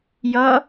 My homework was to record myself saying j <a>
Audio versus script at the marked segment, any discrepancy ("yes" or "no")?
yes